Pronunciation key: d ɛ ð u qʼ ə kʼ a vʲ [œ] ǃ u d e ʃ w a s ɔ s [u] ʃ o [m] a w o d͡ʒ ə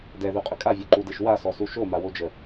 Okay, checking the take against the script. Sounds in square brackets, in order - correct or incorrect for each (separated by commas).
correct, correct, correct